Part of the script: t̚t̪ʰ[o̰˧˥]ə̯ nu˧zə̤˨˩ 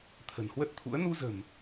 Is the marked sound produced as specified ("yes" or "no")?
no